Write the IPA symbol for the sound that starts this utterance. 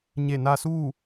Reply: ɲ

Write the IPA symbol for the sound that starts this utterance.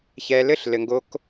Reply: ç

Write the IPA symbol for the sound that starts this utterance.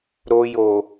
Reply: ɾ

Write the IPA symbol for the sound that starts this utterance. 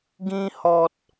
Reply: ɡ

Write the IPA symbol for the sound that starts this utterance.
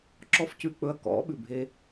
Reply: ǁ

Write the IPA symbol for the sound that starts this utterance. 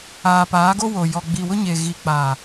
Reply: aː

